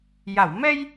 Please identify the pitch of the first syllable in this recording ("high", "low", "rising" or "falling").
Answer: low